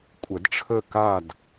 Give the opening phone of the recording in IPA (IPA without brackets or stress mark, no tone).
kʷʼ